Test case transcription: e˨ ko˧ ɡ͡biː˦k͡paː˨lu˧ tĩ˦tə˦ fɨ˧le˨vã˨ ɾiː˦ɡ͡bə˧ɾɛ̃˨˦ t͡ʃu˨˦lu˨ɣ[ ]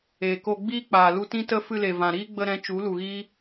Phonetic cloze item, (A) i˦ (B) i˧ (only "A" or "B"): A